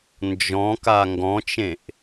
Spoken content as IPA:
n d͡ʒ ɔ̃ k a ŋ ɡ ɔ̃ t͡ʃ ẽ ʔ

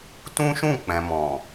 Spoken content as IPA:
t ũ˦ ʃ ũ˦˨ k͡p ɛ̃˨ m ɔ̃˨

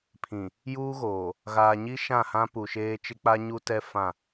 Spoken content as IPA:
pʰ ĩ˨ | j uː˦ ɣ oː˨ | ɣ aː˨ ɲ i˦ ʃ ã˦˨ h ã˦ p u˨ ʃ eː˦ t͡ʃ ɪ˦ k͡p a˦ ɲ u˦ t ɛ˦ f ã˦˨

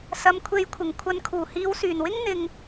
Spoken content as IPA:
s ɐ˨˧ m kʷʰ e˨˧ j kʷʰ ɪ˨˩ ŋ kʷʰ ɐ˨ n kʰ uː˨˩ h iː˨˧ w s yː˨˩ n w ɪ˥ ŋ n̪ ɪ˧ ŋ

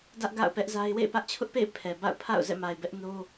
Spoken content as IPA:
d ä˦ ʔ ɡ a̰˦˨ ʊ̯ p ɛ˦ ʔ z a˦ ɪ̯ w ḛ˦˨ ɪ̯ p ä˦ ʔ t͡ɕʰ ʊ˦ ʔ p ḛ˦˨ ɪ̯ pʰ ɛ˨ b a̰˦˨ ʊ̯ pʰ a̰˦˨ ʊ̯ z ɛ̰˦˨ m a˨ ɪ̯ b ɛ˦ ʔ n o˦

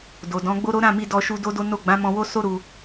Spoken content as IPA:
d o˨ d ɔ̃˨˦ ɡ͡b o˦ ɾ o˦ ɾ ã˦˨ m i˧ d ɔ˧ ʃ u˧ d o˦ d o˦ n o˦˨ ɡ͡b ã˨˦ m ɔ̃˧ w o˦ s o˦ ɾ u˧

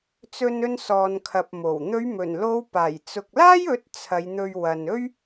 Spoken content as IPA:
t͡s ɵ˧ n ɵ˧ n s ɔː˨ n kʰ ɐ˨ p̚ m o˨˩ w n̪ ɵ˨˧ ɥ m ɵ˨˩ n l o˨˧ w p aː˨˩ j t͡s ʊ˨ k̚ l aː˥ j ɵ˨˥ t̚ t͡sʰ ɐ˨˧ j n̪ ɵ˧ ɥ w ɐ˨ n ɵ˥ ɥ

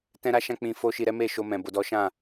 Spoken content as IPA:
t ɛ̃˦ ɾ a˦ ʃ ã˦ k͡p ĩ˧ f o˦ ʃ i˧ ɾ ɛ˦ m e˦˨ ʃ o˧ m ɛ̃˨ b o˧ d ɔ˦ ʃ ã˦˨

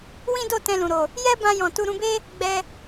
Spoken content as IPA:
w ĩ˦ d o˦˨ t ɛ̃˧ l ũ˨ ɾ o˨ | j ɛ˦ b ã˧ j ɔ̃˨ t u˧ ɾ ũ˧ b e˦ | ɡ͡b ɛ˧

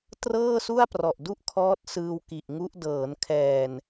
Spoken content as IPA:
t r ɤː˥˩ s u˥˩ a̯ p r ɔ˨˩ ʔ d u˥˩ ʔ kʰ ɔː˦˥ t̚ s ɯː˧ w k i˨˩ ʔ ŋ u˦˥ ʔ d ɤː˩˦ n kʰ ɛː˨˩ n

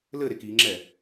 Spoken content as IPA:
l ɘ ɾ e k i ŋ͡ǁ ɛ

